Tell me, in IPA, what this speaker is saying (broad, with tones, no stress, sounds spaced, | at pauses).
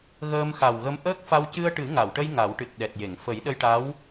ɣ əː˧ m x a˨˩ w ɣ ə˧ m ʔ əː˦˥ k̚ f a˧ w c ɨ˧ ə̯ ʈ ɨ˨˩˦ ŋ a˨˩˨ w ʈ ə˧ j ŋ a˨˩˦ w ʈ ɨ˨˩ t̚ ɗ ɛ˨˩ t̚ j e˨˩˨ ŋ f ə˨˩˦ j ɗ ə˧ j ʈ a˧˥ w